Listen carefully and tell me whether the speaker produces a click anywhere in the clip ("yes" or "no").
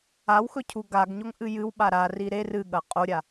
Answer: no